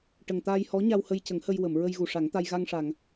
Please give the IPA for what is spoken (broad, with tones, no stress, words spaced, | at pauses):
ʈə˨˩ŋt̪aː˧jhɔ˧˥ɲa˧w hə˧jcə˨˩˦ŋhə˧jwə˨˩˨m ɹə˧jɣu˨˩ʂa˨˩˦ŋt̪a˧j ɣa˧ŋʂa˨˩˨ŋ